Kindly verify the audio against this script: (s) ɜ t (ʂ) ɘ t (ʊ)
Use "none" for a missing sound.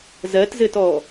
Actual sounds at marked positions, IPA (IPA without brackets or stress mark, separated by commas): z, z, ɔ